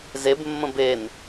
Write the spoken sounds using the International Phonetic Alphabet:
z e b mː ə̃ b e n

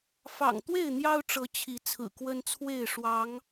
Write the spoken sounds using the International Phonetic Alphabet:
f ɑ̰˨˩ ŋ t̪ w e˥˨ ɪ̯ n̪ j ɑ˦ ʊ̯ ʈ͡ʂ ɤ˨˦ t͡ɕʰ i˨˦ t͡sʰ ɹ̩˨˩ k w ə˦ n t͡sʰ w e˥˨ ɪ̯ ʂ w ɑ˨˦ ŋ

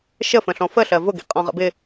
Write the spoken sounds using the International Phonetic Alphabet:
ʃ ə f ə̃ ɬ ɔ̃ f ə ɬ ɜ v ʊ ɡ ḭ qʼ ɔ̃ ʁ ə̰ b ɪ

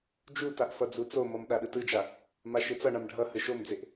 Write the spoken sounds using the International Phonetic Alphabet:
d͡ʒ u t a ʔ f ʌ d͡z u t͡s o m ʌ m ɗ a ɗ ɯ t ɯ d͡ʒ a | m a ʃ ɯ t͡s ʌ ɳ a m ɖʱ ʌ h ɯ ʃ o m d͡z e ʔ

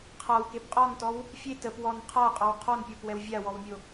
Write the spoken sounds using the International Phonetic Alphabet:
qʰ a w k e p qʼ ɔ n t ɔ w | fʲ e t ə p w ɔ n qʰ a qʼ ɔ w qʰ ɔ n pʲ ɔ p w ɛ w vʲ a w ɔ w mʲ o

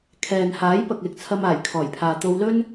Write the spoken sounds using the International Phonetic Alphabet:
kʰ ɛː˨ n h aː˨˥ j p ɐ˨ k̚ l ɪ˨ k̚ t͡sʰ ɐ˧ m aː˨˩ j kʰ ɔː˨˩ j pʰ aː˨ t̪ o˧ w l ɵ˥ n

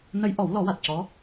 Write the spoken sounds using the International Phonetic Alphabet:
n ə˧˥ j ʔ ɔ˨˩˦ w l ɔ˨˩˦ w a˨˩ t̚ c ɔ˧˥

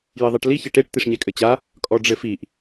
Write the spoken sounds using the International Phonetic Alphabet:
j ɘ ðˤ ɘ ʈ l i ç ɘ ʈ e ʈ t̪ i ʂ ɲ ɛ kʼ ɘ t͡ɕ a | kʼ ɔ ɖ͡ʐ ɘ f i ʔ

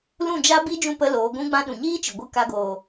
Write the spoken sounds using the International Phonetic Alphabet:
l ũ˦˨ d͡ʒ a˦ b i˦ d͡ʒ ũ˦˨ p ə˧ l oː˨˦ ɡʷ ũ˦ ɡ͡b ã˦ ɗ ũ˨ ɲ iː˦ t͡ʃ ɨ˨ ɡʷ ɨ˧ k a˧ ɡ oː˨

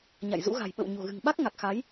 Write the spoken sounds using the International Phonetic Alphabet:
ɲ a̰˧˨ j z ṵ˧˥ ɣ a̤˨˩ j ɓ ə̰˧˨ w ɲ o̤˨˩ ɣ ɨ̤˨˩ ŋ ɓ a˦˥ k̚ ŋ a˨˩ k̚ x a˨˦ j

